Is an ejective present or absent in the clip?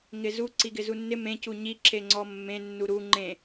absent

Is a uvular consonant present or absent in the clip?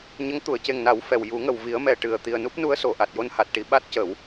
absent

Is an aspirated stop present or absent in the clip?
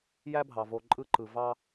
absent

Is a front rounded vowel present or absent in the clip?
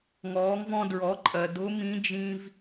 absent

